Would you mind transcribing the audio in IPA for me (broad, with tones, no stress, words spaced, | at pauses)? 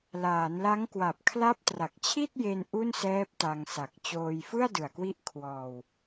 laː˩˦nla˦˥ŋ kwa˨˩p̚kʰla˦˥p̚tra˨˩k̚t͡ɕʰi˥˩t̚ je˧n ʔu˥˩nsɛː˦˥p̚ ta˧ŋsa˨˩k̚ t͡ɕoː˧jfɯ˥˩a̯dɯ˨˩a̯kwi˦˥ʔ kʰwɔː˧w